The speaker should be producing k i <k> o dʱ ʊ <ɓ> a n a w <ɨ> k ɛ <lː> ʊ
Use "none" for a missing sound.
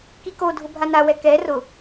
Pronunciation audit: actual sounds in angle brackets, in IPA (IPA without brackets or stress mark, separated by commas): k, bʱ, ɛ, r